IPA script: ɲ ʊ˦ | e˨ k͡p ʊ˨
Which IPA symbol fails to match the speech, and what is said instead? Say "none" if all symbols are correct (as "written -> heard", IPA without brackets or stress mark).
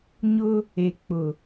none